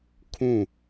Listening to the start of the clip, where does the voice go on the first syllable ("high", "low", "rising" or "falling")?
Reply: falling